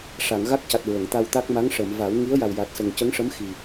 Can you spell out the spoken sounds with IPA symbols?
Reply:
ʂ a˨˩˨ ŋ ɣ a˦˥ k̚ c a˨˩ t̚ ɹ ə˨˩˨ ŋ t̪ a˧ w t̪ a˦˥ k̚ m a˧˥ ŋ ʂ ə˨˩˨ m v a˨˩˦ w ŋ i˧˥ ə̯ j a˨˩ w j a˨˩ t̚ s ə˨˩ ŋ c ə˧˥ ŋ ʂ ə˧˥ m x i˨˩

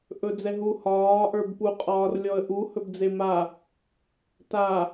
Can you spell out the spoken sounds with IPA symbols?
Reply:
ʔ ɵ d͡z ɛ ɦ u h ɒː ʔ ə˞ b p u qʼ ɒː r lʲ ɔ ə̯ ʔ u h ɵ b d͡z e m a | t a

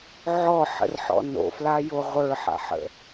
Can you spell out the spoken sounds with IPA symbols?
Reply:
ʕ ɔ ħ ə̰ r ħ ɔ̰ n o̰ f l a j o ʁʷ ə˞ ħ a̰ ħ ə̰

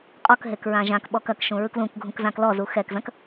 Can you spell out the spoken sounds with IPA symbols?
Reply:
qʼ ɔ k ɦ e k ɹ ã ʒ ã k ɓ ɔ k ɐ k ʃ ũ ɹ ɯ k l ũ k ɡʱ ũ k z ã k l ɔ z u x ɛ k z ɐ̃ k

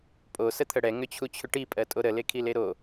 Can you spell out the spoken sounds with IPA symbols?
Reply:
pʼ o s ə t̪ʰ ə ɽ ɛ ŋ ʏ t͡ɕʰ u t͡ɕʰ ʏ ʈ i pʼ ɜ tʼ o ɾ ə l e kʰ i l e ɾ o

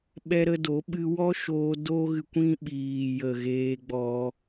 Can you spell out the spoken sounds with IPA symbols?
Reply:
ɓ ɛ˦ ɾ ə˧ d o˨˦ ɓ ɨ˧ w ɔ˦ ʃ oː˧ d o˦ ɣ ɨ˧ kʷ ĩ˦ ɓ iː˨ j ə˨ ɣ eː˧ ɡ͡b ɔ˧

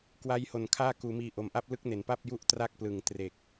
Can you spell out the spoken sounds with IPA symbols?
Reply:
k w a˦˥ j h o˨˩ n kʰ aː˥˩ k uː˩˦ m iː˨˩ ʔ o˨˩ m ʔ a˥˩ p̚ l ɯ˦˥ k̚ n e˩˦ n p a˥˩ p̚ j u˥˩ ʔ t r a˥˩ k̚ p l ɯ˨˩ ŋ t r e˨˩ k̚

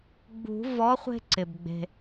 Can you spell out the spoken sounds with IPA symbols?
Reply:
ɡ͡b ṳ˨˩˦ v ɔ˨˥ χʷ e̤˦ ǀ ɪ˩ b ɡ͡b e̤˩

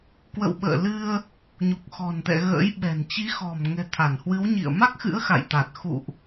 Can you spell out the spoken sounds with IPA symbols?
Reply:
k w ə̰˧˨ w ɓ ə̰ː˧˨ l ɨ˧ ə̯ | ɲ u˨˩ k̚ x ɔ̤˨˩ n t̪ ɛ̰˧˨ ɣ ə̰ː˧˥ j ɓ ɛ̤˨˩ n t͡ɕ i˨˦ x ɔ̤˨˩ m ŋ ɛ̤˨˩ t̪ʰ a˧˩ n h w ɨ˨˦ w ɲ ḭ˧˨ ə̯ m a˦˥ k̚ x ɨ̰˧˥ ə̯ x a̰˧˨ j t̪ a˨˩ t̚ x ṵ˧˨ ʔ

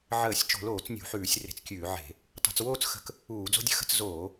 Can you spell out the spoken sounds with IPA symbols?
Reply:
ʕ əː˧˩˧ sʲ t͡ʃ o̤˧˩˧ l oː˧˩˧ t͡s nʲ ṳ˧˩˧ ħ ʉː˧˩˧ sʲ r e̤˧˩˧ t͡s kʲ ʉː˧˩˧ ʕ e̤˧˩˧ | tˤ o̤˧˩˧ t͡s w oː˥˧ t͡s x ə̤˧˩˧ k | uː˧˩˧ d͡z o̤˥˧ dʲ ə̤˥˧ x ə̤˥˧ t͡s z oː˧˩˧

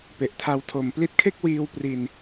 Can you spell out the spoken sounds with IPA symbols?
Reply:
p e˨˩ ʔ tʰ a˧ w tʰ o˩˦ m p l i˦˥ t̚ kʰ e˥˩ k̚ w iː˧ w p r i˧ n

